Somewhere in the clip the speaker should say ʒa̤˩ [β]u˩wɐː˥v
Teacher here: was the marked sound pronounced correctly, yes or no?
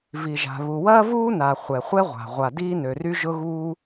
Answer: yes